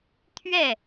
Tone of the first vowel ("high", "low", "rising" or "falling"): falling